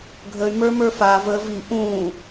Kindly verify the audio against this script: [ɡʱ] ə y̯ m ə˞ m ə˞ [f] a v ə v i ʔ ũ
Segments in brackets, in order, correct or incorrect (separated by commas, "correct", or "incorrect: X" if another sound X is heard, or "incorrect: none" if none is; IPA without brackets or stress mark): correct, correct